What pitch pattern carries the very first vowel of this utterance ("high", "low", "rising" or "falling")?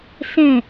falling